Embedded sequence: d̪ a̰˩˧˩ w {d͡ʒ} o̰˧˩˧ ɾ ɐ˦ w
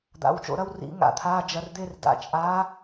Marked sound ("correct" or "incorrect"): incorrect